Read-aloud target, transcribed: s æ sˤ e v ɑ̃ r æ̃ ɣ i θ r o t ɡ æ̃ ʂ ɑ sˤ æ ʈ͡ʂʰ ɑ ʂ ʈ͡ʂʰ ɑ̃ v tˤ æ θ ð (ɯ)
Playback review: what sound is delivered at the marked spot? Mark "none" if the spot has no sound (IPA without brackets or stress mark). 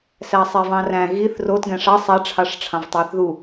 u